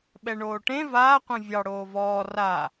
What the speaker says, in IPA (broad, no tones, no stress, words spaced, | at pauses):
ɓɛɳoːʈẽ vaː qʷɛ̃vʲɑ ɽoːvɔː ra